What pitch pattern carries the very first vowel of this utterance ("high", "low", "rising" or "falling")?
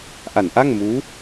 low